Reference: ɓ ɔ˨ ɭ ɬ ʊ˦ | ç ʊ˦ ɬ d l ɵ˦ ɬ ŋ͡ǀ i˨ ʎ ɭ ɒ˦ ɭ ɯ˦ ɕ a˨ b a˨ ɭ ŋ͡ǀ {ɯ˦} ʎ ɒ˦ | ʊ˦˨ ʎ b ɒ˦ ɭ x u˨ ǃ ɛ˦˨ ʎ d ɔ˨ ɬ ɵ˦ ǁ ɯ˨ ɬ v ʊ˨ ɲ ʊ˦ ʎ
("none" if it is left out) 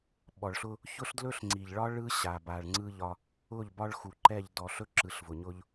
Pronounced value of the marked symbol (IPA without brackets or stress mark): ɯ˦